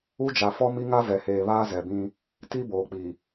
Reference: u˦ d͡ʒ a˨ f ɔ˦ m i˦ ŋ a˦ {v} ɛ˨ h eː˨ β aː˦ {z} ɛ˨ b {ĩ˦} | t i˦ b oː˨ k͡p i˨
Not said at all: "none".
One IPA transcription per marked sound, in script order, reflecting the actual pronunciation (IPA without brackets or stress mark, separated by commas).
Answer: v, z, ĩ˦